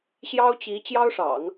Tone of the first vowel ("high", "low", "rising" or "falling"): high